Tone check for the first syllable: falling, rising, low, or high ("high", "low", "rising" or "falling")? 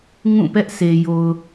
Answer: falling